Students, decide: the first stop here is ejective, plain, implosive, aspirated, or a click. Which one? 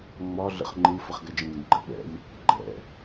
click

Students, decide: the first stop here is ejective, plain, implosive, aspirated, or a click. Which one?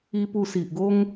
plain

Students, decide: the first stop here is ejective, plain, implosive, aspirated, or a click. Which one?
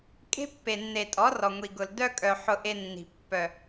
ejective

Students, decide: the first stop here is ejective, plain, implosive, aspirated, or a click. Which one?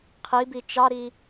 aspirated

